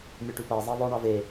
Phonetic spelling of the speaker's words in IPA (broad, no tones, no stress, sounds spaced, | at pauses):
mʲ ø ʈ ʉ p æ zˤ ɑ ðˤ œ ɳ ɑ v e